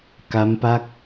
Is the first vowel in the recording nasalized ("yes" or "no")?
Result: no